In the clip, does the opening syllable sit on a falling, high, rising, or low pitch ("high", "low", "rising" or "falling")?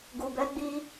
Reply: low